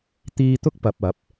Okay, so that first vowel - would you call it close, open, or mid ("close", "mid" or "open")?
close